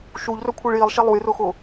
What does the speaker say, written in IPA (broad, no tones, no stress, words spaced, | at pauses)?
ʃuʎrɵ kʷʰiɭjilˠʃe lˠujrʊxʊ